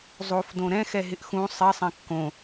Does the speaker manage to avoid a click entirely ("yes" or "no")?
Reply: yes